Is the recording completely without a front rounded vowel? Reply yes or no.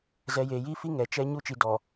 yes